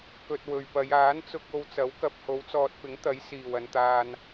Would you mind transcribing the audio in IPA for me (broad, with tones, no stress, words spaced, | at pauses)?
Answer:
kɵ˧t̚wɵ˨ɥpɐ˨˧j aː˨˥nt͡sʊ˧k̚ o˧wt͡sɐ˨˥wkɐ˧p̚ ho˨˥wt͡sɔː˨t̚pɪ˨˥ŋt̪ɐ˨˥j siː˨˩wɐ˨nt̪aː˨n